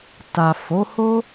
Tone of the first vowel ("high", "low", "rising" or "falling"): low